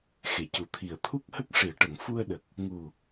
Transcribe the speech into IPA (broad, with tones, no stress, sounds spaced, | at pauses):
x e˨˩˨ c u˨˩ t̪ʰ i˨˩ ə̯ t̪ʰ u˦˥ k̚ h ə˦˥ k̚ ʂ i˨˩˨ ə̯ ʈ ə˨˩˨ ŋ f u˧ ə̯ ɗ ə˨˩ k̚ | ŋ u˨˩